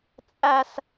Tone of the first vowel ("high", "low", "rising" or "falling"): high